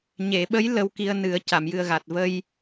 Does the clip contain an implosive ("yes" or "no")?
yes